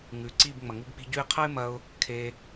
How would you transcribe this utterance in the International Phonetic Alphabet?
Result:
ŋ ʉ˨˦ ǀ i˦˨ b ŋ͡m ɐ˨ ŋ u˧ b k͡p i̤˧ ɟ ʉ˧ ɪ̯ qʰ ɐ˦ ɪ̯ m ɐ˧ ʊ̯ | kʰ e˧

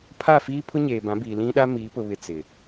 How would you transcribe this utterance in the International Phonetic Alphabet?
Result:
pʰ a˦˨ f iː˦ pʰ ʊ˦ ɲ eː˨ b ã˨˦ b iː˨ l ĩ˦ ɗ a˦ m iː˨˦ p ʊ˨ β ɪ˨ t͡s ɪ˨

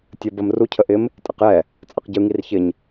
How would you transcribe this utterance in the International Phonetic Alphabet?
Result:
tʲ ə b ə m r u cʰ ə ʔ ɪ m | tʼ ɪ q j ɛ | t͡sʼ ɐ q ɟ ɯ ŋ i r ç ɪ ɲ

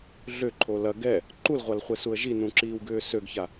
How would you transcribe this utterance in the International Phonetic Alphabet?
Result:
ɮ ʏ ǃʰ o l ɐ ɡ ɛ | ǃ u l ʁʷ a l χʷ ɛ s u ə̯ ʒ i n ũ ǁ iː w ɡ ʏː s ø ɡ ç a

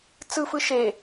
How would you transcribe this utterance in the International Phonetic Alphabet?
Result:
t͡s ɯ f ɯ ʃ e

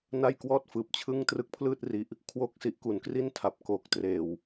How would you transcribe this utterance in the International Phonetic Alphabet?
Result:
n a˥˩ j k w ɔː˥˩ t̚ f ɯː˨˩ p̚ t͡ɕʰ ɯ˥˩ ŋ t r ɯ˦˥ k̚ pʰ l ɯː˥˩ t̚ r i˦˥ ʔ | kʰ w o˥˩ k̚ s i˦˥ ʔ k u˩˦ n k r i˥˩ n tʰ a˨˩ p̚ k o˨˩ k̚ t r eː˨˩ w

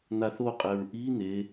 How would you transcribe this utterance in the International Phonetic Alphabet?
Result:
n̪ a θ o qʼ ɛ ɹ ʔ i n̪ e

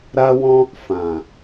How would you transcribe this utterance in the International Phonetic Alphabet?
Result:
ɾ a˦ w ɔ̃˦ | f ã˨

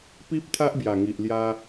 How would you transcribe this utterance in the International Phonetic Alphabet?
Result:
p i˦ p̚ t̪ʰ a˦ ʔ b j a˨˩ ŋ i˨ ʔ l j a˧

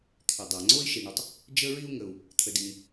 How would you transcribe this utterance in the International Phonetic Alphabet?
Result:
t̪ʰ ʏ˩ dˤ a˩ ŋ͡ǀ o˥ i̯ ʃ i˩ ɳ ɯ˨ tˤ | d͡ʒ ə˥ ɹ i˥ u̯ ŋ ə˩ u̯ | t̪ʰ ə˨ d i˨ ŋ

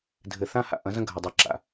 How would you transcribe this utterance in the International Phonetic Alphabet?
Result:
dʱ ɘ˨ θ ã˦ h a̰˨ ʔ ɐ̃˨˦ z ɐ̃˦ ɡʱ ɐ˨ dˤ ɛ˨ ǁ a̰˨

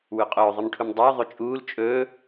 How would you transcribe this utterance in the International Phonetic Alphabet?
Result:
w ʉ qʼ ɵː ðˤ ɨ m ʈʰ u m dˤ ɵː ðˤ ɵ t͡ʃʼ uː l t͡ʃʼ ɵː

